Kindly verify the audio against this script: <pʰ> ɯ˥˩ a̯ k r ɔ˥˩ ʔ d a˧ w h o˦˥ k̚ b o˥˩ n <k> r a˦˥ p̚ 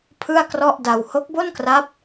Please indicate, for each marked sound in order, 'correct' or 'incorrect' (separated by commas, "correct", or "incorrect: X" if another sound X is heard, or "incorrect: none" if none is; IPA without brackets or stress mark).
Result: correct, correct